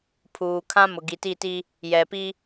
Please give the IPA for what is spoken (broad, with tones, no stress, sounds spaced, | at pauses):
pʰ uː˨ kʰ ã˦ m ʊ˨ ɡ i˨ t i˦˨ t i˦ | j ɛ˨ p i˦